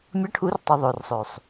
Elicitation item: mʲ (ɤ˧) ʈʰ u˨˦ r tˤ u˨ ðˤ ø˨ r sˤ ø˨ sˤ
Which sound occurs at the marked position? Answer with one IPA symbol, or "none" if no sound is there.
ɤ˧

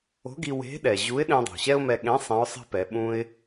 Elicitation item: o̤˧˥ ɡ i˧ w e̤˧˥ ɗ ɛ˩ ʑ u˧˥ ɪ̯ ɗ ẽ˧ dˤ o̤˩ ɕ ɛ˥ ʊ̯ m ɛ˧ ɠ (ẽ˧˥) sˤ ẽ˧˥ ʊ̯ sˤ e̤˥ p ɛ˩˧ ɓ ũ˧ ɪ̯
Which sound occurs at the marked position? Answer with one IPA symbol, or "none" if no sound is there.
ẽ˧˥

